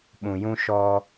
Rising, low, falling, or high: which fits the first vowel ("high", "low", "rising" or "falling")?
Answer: low